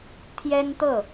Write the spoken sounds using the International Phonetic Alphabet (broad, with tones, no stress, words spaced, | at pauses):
t̪ʰjɛ˥nt̪ɤ˥˩